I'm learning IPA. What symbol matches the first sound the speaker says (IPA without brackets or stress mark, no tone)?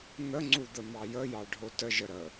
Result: n̪